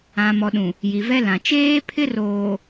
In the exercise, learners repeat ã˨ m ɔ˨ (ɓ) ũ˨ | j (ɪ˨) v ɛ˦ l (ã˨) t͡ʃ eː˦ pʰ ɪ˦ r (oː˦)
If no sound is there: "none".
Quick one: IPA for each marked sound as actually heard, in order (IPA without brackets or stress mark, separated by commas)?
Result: ɗ, i˨, ã˨, oː˨